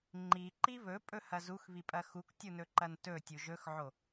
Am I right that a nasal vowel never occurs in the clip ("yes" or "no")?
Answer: yes